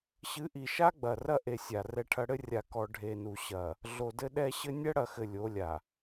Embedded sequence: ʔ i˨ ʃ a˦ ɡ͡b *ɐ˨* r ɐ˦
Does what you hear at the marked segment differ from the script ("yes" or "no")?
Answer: no